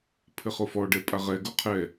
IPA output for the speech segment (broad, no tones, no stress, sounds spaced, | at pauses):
pʰ ɘ χ o f ɔ ɖ ɛ pʼ a ʁ ɛ ɡ o qʰ ɛ